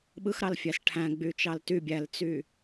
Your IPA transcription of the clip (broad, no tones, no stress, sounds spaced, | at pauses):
ɓ ɯ x ɾ ɑ l fʲ æ s ʈʰ æ̃ ɡ͡b y t͡ʃ ɑ l t y bʲ æ l t͡s y